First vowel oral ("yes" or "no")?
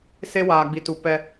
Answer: yes